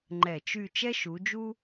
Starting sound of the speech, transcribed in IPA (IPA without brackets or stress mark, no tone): ŋ͡ǃ